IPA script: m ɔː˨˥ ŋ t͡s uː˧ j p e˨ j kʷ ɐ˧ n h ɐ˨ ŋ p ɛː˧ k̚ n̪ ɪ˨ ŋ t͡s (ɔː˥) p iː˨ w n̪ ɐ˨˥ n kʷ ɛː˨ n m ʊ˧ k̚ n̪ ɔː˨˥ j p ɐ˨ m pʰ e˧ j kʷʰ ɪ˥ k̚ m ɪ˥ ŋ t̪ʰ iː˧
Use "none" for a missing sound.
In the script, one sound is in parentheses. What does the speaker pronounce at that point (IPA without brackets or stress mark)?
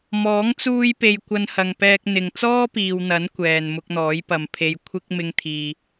ɔː˥